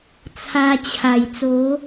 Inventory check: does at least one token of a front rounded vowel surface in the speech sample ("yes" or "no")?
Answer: no